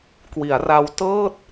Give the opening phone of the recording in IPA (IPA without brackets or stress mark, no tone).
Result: k